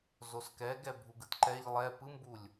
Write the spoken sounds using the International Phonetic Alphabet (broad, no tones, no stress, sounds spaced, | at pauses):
z o s k ɛ ɡ ɛ bʱ u ɡ ɯ t ǃ ɛ ʎ lˠ ɛ p ɯ m b u lʲ